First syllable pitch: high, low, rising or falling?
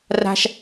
high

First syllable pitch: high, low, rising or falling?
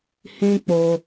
high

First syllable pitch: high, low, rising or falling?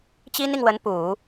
high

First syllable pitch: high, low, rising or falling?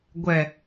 low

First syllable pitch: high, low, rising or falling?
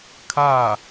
falling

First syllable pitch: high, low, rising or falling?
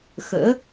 rising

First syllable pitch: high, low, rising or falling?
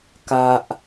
low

